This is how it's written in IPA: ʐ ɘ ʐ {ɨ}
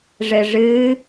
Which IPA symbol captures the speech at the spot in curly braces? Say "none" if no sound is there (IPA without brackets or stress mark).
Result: ɨ